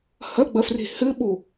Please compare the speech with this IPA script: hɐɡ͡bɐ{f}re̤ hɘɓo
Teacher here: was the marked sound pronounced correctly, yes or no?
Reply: yes